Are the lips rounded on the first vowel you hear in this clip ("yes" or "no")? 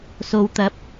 yes